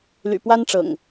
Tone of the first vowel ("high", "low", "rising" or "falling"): low